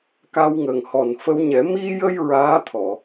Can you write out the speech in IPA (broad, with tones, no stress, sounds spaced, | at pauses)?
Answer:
k a˧ w ŋ ə˨˩ ŋ h ɔ˨˩ n f ə˧ w ɲ ɛ˨˩˦ m i˧ j ə˧ j ɹ aː˧˥ t̪ʰ ɔ˨˩˨